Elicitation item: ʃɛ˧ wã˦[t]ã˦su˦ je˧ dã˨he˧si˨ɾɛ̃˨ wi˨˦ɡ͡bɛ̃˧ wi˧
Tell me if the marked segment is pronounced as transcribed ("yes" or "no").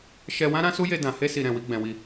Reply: no